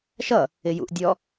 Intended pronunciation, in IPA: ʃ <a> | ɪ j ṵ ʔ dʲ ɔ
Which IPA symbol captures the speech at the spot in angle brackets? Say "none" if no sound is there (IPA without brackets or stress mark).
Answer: ʌ